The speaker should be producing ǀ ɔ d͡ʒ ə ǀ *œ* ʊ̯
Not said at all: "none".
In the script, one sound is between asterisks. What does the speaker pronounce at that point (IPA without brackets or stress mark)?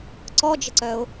œ